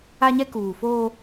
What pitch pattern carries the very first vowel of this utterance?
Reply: high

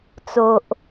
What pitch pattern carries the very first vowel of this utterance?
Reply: low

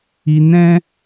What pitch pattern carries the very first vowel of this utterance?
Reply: low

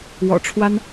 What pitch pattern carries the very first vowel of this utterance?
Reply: low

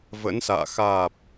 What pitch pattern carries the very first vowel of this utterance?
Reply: rising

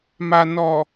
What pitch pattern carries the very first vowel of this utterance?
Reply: low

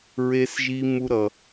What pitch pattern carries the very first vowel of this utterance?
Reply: high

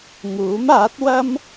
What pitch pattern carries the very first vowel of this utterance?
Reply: rising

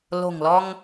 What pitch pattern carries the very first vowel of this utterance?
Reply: low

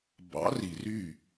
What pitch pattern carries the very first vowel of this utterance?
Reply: rising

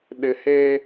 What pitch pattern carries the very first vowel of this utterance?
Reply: low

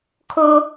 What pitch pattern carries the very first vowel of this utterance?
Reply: high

